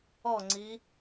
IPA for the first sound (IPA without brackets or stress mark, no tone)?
ɔ